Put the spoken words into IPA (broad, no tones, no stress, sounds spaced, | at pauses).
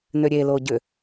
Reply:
n ʏ ɾʲ e l o ɟ ʏ